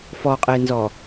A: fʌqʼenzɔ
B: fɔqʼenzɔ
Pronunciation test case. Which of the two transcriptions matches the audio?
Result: B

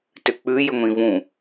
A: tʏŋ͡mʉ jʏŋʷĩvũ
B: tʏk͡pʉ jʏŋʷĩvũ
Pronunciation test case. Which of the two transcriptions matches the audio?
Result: B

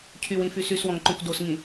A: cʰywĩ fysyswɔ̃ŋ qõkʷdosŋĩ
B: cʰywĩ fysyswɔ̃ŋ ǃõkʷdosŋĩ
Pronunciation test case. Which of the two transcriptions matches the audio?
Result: B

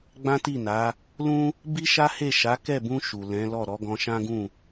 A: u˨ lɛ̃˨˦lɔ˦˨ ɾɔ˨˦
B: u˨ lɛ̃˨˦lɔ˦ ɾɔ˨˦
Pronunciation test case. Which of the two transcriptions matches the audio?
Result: A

